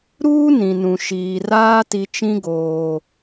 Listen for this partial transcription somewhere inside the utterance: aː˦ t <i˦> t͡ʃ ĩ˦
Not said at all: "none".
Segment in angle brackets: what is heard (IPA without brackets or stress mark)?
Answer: i˦